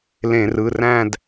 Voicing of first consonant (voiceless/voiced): voiced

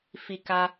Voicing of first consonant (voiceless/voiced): voiceless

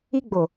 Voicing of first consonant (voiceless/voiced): voiced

